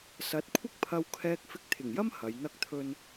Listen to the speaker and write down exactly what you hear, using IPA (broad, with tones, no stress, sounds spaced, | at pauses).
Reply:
s ɐ˨˥ t̚ kʷʰ ɪ˥ k̚ pʰ ɐ˧ w kʰ ɛː˧ k̚ f ɪ˧ k̚ t̪ʰ ɪ˨˩ ŋ j ɐ˥ m h ɐ˨˧ j n̪ ɐ˥ k̚ t̪ʰ ɵ˥ n